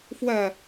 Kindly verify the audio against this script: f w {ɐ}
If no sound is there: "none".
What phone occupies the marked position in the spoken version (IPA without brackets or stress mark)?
ɐ